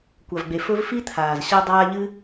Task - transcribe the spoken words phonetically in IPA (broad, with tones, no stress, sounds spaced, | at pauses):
kʷ a˨ v ɡ͡b e˨ f ɵ˦ v f i˥ t̪ʰ aː˩ z ɕ a˦ dˤ aː˦ ʎ ɨ˥